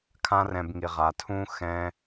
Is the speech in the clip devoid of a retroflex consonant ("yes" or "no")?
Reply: yes